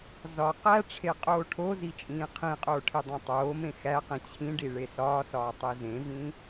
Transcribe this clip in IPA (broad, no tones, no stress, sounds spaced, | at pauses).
z ɒ q æ ʈ͡ʂʰ e qʼ oː ʈʰ o z i t͡ʃʼ ĩː qʰ ĩ qʼ oː ʈʰ i dˤ æ̃ tˤ oː m ẽ x æ q ĩ t͡ɕʰ ĩ ɖ i ɭ e s ɒː s ɒː tˤ i z ẽ v ĩ